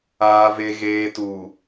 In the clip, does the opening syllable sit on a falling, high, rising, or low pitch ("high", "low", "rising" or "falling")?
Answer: low